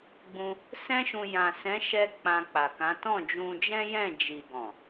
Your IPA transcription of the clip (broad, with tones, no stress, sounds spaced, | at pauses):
ɡ͡b ũ˧ | s ɛ̃˦ ʃ ũ˧ j ã˨ s ɛ̃˨˦ ʃ ɛ˧ k͡p ã˧ k͡p a˨ k ã˨˦ t ɔ̃˦˨ d͡ʒ ũ˧ d͡ʒ ɛ̃˦ j ɛ̃˦˨ d͡ʒ i˨ ɡ ɔ̃˨